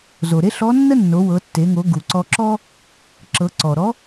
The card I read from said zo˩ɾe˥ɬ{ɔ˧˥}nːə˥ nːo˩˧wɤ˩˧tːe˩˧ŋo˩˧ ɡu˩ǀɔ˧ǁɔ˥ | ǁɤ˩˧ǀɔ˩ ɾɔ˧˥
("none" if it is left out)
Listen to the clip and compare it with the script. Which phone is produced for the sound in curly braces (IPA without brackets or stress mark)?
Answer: ɔ˧˥